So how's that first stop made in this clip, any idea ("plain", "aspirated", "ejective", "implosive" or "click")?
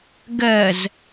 plain